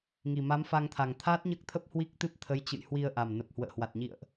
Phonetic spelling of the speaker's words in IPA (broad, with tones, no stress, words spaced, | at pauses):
ŋi˨˩ma˨˦mfa˧ŋ t̪ʰa˨˩ŋt̪ʰaː˦˥t̚ɲəː˦˥k̚t̪ʰə˦˥p̚ hwi˦˥k̚t̪ɨ˦˥p̚ t̪ʰə˨˦j t͡ɕɨ̰˧˨jhwi˧ə̯ʔa˨˩m nə˨˩p̚ hwə̰ː˧˨hwa˨˩t̚ɲḭ˧˨ə̯ʔ